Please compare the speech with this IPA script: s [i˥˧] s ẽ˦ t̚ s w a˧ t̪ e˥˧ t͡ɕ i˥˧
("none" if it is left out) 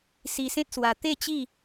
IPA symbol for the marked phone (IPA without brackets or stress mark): i˧